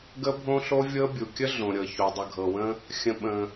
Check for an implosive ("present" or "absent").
present